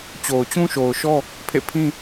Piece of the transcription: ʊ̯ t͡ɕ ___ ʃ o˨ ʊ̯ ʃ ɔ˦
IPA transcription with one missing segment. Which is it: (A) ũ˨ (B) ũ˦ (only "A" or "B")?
B